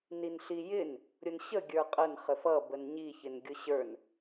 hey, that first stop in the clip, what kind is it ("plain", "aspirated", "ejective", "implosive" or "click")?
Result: plain